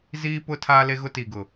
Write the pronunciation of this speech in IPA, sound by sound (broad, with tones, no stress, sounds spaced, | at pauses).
z iː˦ p ʊ˦ tʰ aː˦ l e˦ ɣ ʊ˦ t i˨ ɡ ʊ˨